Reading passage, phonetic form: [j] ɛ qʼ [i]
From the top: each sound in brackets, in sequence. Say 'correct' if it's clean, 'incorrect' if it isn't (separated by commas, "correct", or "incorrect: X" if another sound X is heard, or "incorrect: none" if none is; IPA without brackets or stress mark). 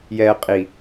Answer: correct, correct